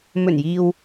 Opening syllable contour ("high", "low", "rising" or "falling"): low